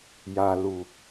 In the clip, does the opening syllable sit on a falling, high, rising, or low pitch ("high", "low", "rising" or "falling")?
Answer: low